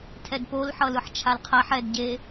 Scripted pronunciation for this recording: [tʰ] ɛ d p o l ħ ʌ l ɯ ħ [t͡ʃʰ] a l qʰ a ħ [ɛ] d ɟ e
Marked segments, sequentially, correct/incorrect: correct, correct, correct

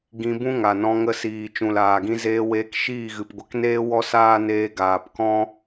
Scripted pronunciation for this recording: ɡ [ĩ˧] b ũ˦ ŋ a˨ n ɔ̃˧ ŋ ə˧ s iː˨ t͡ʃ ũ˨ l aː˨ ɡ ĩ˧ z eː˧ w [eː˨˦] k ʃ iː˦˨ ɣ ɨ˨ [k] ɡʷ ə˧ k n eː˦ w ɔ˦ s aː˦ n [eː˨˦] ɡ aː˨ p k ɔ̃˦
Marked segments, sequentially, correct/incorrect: correct, incorrect: eː˧, incorrect: p, incorrect: eː˧

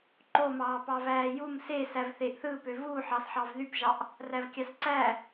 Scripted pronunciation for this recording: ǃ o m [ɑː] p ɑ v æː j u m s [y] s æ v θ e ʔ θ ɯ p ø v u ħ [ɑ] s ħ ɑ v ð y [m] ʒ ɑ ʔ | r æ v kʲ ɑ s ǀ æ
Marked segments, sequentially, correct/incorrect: correct, incorrect: e, correct, incorrect: p

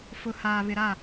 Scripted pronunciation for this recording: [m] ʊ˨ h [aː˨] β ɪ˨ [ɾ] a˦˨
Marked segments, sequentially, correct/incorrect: incorrect: f, correct, correct

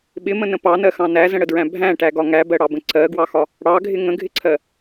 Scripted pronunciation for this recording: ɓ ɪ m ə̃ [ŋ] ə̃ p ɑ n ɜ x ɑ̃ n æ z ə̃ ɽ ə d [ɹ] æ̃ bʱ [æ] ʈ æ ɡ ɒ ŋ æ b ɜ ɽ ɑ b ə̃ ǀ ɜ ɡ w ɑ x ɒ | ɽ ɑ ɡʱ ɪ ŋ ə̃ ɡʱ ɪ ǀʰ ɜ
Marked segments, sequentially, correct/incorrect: incorrect: n, correct, incorrect: æ̃

